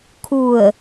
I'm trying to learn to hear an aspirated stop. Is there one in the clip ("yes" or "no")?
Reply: yes